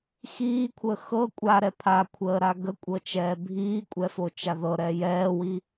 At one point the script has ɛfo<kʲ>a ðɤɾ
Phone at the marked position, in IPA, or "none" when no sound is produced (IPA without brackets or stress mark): t͡ʃ